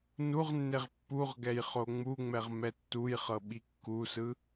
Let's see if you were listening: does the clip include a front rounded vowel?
no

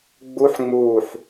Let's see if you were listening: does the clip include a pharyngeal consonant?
yes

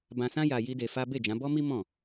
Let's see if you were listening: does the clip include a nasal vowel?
yes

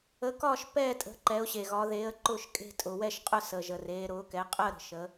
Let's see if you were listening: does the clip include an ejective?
yes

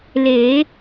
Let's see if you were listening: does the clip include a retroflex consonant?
no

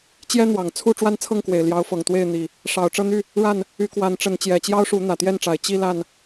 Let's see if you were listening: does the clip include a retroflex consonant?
yes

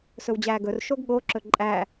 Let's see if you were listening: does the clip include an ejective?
yes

